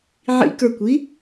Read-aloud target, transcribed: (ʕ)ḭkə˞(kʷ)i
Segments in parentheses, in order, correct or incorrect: correct, correct

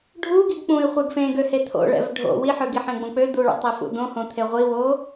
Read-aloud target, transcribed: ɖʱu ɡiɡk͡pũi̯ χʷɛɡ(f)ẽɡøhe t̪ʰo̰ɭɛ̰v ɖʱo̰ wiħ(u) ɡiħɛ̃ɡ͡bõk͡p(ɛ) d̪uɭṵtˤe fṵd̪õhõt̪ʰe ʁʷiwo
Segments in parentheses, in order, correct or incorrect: correct, incorrect: ø, incorrect: ø

